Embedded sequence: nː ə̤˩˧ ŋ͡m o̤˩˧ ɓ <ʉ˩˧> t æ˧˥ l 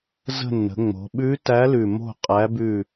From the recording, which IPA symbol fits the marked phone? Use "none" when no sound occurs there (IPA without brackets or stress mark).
ʉ˧˥